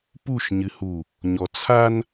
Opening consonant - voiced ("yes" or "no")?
no